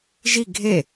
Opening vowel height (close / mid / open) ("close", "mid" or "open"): close